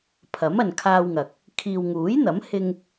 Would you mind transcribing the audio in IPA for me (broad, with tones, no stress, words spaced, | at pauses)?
pʰɐ˨˥mɐ˨nkʰaː˧wŋɐ˨k̚ | kʰiː˨wŋuː˨˥jn̪ɐ˨˥mhɪ˧ŋ